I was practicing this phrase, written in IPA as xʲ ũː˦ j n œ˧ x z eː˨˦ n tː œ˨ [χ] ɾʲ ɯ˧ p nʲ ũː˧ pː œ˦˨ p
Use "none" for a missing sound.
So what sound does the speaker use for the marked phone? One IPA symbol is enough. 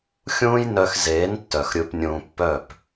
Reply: x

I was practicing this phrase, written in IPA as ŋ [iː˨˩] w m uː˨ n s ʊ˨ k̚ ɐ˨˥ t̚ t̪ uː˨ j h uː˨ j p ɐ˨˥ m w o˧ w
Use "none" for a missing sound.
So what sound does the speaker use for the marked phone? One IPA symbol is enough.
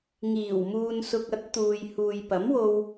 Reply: iː˨˩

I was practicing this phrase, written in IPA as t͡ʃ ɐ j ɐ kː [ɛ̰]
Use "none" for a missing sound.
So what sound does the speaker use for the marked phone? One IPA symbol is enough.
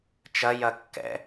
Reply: ɛ̰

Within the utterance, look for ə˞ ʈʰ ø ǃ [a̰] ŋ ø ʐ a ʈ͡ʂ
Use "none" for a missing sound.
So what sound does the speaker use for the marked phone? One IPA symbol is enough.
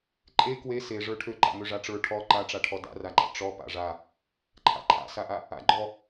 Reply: a̰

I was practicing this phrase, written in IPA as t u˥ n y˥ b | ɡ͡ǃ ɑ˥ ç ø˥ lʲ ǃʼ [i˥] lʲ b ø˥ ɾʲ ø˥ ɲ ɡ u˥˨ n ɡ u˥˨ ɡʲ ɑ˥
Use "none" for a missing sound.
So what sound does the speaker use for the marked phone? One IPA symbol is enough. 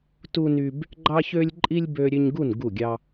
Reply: i˥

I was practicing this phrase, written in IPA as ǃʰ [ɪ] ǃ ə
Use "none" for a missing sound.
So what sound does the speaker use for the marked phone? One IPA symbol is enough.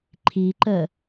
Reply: i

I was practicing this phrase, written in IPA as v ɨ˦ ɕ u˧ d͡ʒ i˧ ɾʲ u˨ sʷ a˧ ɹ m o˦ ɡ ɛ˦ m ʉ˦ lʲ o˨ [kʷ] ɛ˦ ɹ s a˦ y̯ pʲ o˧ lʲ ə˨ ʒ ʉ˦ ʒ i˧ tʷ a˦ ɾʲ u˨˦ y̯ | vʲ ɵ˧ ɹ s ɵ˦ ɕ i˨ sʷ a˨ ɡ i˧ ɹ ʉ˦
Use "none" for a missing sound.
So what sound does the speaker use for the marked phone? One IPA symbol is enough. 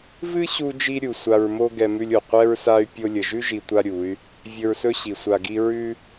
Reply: qʷ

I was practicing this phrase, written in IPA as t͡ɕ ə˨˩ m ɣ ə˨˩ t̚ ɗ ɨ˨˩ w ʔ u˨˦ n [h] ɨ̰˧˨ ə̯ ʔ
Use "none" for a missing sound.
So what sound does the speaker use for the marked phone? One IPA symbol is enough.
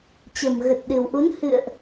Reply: h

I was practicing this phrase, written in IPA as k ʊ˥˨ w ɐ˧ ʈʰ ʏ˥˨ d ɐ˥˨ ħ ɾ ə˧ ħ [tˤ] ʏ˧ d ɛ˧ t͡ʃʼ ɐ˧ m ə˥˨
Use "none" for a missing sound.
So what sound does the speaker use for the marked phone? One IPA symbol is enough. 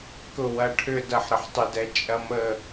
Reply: tˤ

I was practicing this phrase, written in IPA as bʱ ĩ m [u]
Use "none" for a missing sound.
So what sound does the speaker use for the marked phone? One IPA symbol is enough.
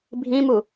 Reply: u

